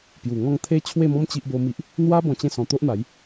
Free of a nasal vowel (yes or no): no